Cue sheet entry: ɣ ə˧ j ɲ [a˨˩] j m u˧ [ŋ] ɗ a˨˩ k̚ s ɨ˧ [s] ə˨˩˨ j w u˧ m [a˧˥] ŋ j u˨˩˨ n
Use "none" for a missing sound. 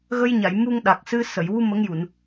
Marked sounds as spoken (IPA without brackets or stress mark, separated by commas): a˨˩˨, ŋ, s, ə˧˥